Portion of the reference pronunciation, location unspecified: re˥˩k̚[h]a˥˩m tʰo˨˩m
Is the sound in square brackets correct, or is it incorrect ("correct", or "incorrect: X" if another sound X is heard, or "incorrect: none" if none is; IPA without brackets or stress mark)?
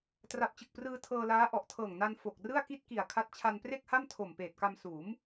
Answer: correct